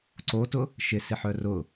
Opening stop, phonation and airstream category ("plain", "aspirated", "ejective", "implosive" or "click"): click